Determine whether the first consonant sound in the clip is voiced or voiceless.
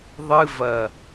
voiced